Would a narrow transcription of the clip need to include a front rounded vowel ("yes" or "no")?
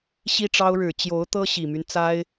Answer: yes